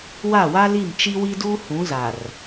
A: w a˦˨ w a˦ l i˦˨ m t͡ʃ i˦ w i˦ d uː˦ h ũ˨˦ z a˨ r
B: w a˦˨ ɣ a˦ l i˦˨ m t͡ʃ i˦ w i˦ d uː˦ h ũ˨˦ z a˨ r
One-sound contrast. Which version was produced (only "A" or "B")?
A